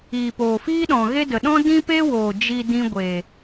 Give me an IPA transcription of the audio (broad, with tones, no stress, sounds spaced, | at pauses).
iː˨ p oː˨ f iː˦ ɗ ɔ̃˨ ɣ e˦ d ə˨ ɗ ɔ̃˦ d ĩ˦ p e˦ w oː˨ d͡ʒ i˧ d ĩ˧ ɡʷ e˨